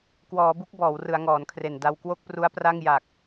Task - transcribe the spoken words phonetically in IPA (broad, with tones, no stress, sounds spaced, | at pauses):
k w ɔː˩˦ b u˥˩ k̚ b ɔː˩˦ w r ɯ˩˦ a̯ ŋ ɔː˩˦ n kʰ r e˨˩ n d a˧ w k w o˥˩ k̚ p r u˦˥ a̯ p r a˥˩ ŋ j a˨˩ k̚